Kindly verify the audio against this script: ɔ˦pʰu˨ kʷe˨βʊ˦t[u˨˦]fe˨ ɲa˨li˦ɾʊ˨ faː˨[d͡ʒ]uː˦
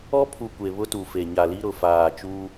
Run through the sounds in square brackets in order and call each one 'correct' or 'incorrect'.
incorrect: u˨, incorrect: t͡ʃ

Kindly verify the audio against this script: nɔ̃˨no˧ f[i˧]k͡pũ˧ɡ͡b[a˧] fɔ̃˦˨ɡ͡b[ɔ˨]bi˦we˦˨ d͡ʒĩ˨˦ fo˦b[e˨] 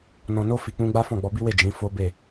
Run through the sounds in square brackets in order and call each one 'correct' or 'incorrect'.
incorrect: i˨, incorrect: a˦, incorrect: ɔ˧, incorrect: e˦˨

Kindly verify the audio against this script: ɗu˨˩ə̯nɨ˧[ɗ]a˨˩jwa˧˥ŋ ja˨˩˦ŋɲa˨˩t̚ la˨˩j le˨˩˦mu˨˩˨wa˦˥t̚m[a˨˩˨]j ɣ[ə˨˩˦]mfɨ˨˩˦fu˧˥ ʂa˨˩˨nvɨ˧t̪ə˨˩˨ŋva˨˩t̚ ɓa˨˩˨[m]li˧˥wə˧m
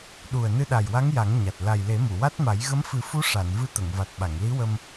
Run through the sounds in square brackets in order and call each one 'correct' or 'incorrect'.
correct, incorrect: a˨˩˦, incorrect: ə˧˥, incorrect: ŋ

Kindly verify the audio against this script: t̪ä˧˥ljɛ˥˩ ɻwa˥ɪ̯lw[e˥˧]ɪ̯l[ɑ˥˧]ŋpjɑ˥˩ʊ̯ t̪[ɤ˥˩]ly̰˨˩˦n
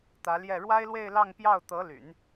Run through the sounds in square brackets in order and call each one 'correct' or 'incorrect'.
correct, correct, incorrect: ɤ˧˥

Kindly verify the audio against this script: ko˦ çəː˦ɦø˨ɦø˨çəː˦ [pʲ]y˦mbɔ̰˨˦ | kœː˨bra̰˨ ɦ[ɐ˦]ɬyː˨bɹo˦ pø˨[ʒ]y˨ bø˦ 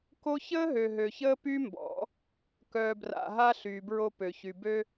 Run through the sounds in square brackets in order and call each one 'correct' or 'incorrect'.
incorrect: p, incorrect: a˦, incorrect: ç

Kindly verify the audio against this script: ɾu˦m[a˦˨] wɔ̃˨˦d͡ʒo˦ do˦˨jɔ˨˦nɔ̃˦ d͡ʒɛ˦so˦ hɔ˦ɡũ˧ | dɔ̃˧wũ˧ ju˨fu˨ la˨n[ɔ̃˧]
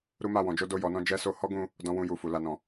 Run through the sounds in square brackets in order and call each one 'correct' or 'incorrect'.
correct, incorrect: ɔ̃˨

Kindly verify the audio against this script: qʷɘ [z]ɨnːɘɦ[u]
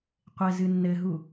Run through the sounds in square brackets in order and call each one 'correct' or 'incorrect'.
correct, correct

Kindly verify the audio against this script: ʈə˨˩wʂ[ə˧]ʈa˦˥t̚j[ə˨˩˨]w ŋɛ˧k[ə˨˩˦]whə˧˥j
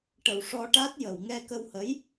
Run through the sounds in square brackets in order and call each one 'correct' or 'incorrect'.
incorrect: ɔ˧, correct, incorrect: ə˧

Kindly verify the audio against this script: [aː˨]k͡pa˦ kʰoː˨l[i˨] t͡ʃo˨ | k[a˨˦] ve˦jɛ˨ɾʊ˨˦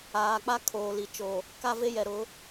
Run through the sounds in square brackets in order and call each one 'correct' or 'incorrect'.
correct, correct, incorrect: a˦

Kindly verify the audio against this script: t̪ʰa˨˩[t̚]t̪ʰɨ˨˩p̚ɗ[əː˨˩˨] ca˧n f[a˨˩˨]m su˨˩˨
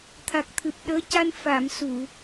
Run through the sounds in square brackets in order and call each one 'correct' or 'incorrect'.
incorrect: k̚, incorrect: əː˧˥, correct

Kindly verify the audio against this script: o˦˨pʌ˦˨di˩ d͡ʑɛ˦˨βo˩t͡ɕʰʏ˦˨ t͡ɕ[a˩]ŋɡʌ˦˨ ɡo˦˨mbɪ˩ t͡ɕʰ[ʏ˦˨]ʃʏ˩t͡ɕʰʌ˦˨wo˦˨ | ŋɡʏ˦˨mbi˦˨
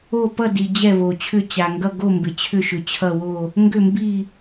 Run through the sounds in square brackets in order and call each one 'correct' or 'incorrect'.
correct, correct

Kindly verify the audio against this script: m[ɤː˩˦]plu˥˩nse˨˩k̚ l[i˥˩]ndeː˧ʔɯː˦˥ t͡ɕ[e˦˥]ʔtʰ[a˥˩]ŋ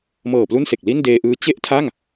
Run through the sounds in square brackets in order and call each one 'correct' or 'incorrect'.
incorrect: ɤː˨˩, correct, incorrect: e˥˩, correct

